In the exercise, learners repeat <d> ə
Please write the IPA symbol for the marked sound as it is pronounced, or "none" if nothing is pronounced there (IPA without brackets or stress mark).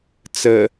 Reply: t͡s